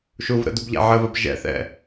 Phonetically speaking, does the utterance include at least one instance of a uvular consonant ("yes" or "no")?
no